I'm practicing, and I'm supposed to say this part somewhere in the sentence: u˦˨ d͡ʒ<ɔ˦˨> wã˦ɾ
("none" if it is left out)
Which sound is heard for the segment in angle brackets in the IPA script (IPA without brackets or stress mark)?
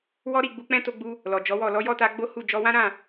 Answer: ɔ˧